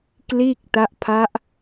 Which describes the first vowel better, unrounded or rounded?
unrounded